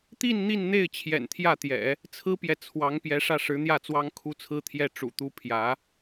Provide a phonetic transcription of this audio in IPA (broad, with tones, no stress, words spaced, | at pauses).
t̪i˥˧n n̪i˥˧nn̪e˥˩ɪ̯ t͡ɕʰjɛ̰˨˩nt̪ʰjä˥˩t̪jɛ̰˨˩˦ | t͡sʰɹ̩˥pjɛ˨ t͡sʰwɑ˧˥ŋ pjɛ˧˥ʂä˥˩ ʂɻ̩˧˥n̪jä˥˩t͡swɑ˥ŋ kʰu˥t͡sʰɹ̩˥t̪ʰjɛ˥˩ ʈ͡ʂṵ˨˩t̪u˥ pʰjä˧˥